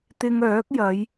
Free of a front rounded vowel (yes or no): no